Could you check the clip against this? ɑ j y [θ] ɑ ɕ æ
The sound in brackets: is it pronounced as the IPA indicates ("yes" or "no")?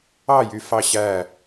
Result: no